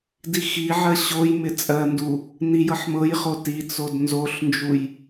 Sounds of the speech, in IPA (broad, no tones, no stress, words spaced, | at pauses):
dixiʕɜ ɕojmɪ t͡sʼɜndu | nijɤħmɤjχo tit͡sod nzoɬnd͡ʒuj